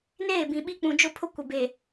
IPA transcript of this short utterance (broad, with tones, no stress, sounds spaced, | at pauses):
n eː˦˨ b ĩ˨ ɓ i˦ k͡p ũ˨ d͡ʒ ʊ˦˨ pʰ ʊ˦ kʷ ɪ˨ b e˨